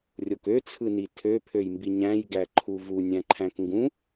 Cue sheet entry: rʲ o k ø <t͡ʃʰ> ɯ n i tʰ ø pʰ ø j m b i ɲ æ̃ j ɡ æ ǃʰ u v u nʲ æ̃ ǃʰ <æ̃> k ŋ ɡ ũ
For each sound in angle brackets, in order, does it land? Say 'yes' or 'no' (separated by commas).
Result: no, yes